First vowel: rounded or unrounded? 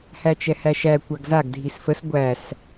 unrounded